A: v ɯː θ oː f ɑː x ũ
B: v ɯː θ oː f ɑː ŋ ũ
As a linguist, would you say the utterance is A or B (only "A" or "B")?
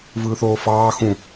A